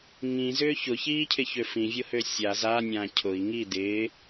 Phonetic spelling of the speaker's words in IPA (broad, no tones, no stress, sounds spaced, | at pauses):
ŋ ĩ z ʏː ç ʊ ç iː cʰ ɪ ç ø f ĩ vʲ ʊ h ø sʲ a z a nʲ ã cʰ ʊ i̯ ŋ i d ɪː